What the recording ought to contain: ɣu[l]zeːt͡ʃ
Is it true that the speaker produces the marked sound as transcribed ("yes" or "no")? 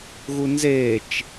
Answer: no